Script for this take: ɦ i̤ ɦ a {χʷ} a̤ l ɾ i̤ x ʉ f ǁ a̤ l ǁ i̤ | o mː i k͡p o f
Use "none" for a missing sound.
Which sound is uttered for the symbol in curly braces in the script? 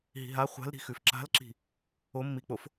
χʷ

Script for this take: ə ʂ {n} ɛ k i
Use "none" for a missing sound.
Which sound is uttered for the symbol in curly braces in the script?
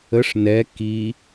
n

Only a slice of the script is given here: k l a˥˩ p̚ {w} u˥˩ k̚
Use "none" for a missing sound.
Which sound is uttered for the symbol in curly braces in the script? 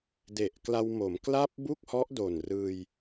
b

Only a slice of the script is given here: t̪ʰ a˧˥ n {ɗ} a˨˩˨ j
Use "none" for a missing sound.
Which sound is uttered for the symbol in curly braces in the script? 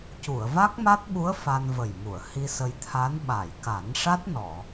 ɓ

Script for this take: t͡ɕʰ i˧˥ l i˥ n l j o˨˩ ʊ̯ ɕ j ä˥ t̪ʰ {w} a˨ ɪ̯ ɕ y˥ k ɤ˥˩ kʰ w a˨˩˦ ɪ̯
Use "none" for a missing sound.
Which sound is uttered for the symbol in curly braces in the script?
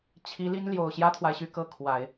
w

